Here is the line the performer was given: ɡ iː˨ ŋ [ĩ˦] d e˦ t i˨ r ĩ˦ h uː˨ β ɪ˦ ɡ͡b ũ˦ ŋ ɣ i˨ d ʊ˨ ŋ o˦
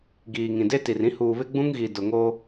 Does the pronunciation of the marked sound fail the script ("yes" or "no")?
yes